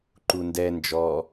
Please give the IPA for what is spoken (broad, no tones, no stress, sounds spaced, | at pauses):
ǃ u n d ɛ n d͡ʒ ɔ